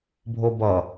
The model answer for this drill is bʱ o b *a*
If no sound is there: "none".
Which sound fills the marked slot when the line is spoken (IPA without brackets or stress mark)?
ʌ